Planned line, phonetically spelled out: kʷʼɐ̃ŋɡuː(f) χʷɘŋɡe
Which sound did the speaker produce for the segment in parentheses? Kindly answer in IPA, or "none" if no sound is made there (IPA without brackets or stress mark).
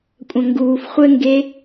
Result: f